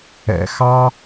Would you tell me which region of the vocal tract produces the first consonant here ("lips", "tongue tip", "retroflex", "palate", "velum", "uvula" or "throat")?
velum